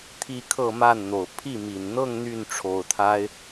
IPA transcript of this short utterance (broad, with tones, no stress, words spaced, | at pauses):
t̪ʰi˥˧kʰɤ˥˧ma˥˩nn̪o˨˩ʊ̯ pʰi˥˩mi˨˩n n̪ɤ˥˧ŋ n̪y˥˩n ʈ͡ʂʰo˨˩ʊ̯t̪ʰa˥ɪ̯